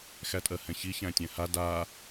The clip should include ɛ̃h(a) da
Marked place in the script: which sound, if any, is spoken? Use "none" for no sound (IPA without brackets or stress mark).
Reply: a